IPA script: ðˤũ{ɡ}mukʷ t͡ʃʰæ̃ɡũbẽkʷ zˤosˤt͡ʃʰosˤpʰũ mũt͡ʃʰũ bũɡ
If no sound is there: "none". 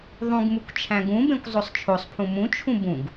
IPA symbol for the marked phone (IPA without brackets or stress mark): ɡ